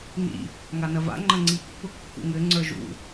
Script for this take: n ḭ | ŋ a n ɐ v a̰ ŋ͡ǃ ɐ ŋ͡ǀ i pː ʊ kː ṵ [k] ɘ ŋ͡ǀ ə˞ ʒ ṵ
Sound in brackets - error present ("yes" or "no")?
yes